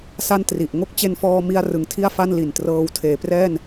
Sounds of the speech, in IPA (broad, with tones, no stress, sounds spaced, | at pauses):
s a˥˩ n t r i˨˩ ʔ ŋ o˥˩ k̚ t͡ɕ e˧ n f ɔː˧ m i˧ a̯ r ɯ˨˩ ŋ tʰ i˥˩ a̯ f a˥˩ n l i˨˩ n t r ɤː˧ w tʰ eː˩˦ p r ɛː˥˩ n